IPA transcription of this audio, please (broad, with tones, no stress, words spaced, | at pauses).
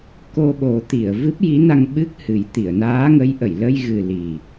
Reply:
ko˧ɓo˨˩˦t̪i˨˩˨ə̯ vɨ˦˥p̚ji˧˥na˧ŋ ɓɨ˦˥k̚hɨ˨˩˦j t̪i˨˩˨ə̯naː˧˥ŋə˧˥jʔə˨˩˨j lə˧jɣɨ˨˩ li˨˩